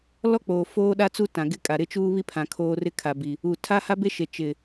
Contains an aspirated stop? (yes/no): yes